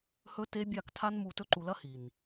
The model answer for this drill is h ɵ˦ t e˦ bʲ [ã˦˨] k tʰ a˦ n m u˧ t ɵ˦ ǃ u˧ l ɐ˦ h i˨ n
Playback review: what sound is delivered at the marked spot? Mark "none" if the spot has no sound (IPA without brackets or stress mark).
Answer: a˦˨